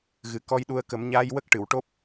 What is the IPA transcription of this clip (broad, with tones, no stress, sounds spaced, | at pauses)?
ɣ ɨ˨˩ k ɔ˧ j ɗ u˧ ə̯ k ə˨˩˦ m ɲ a˧ j w ə˦˥ k̚ ʈ ɨ˨˩˨ w ʈ o˦˥ p̚